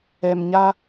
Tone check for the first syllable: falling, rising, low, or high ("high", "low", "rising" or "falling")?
low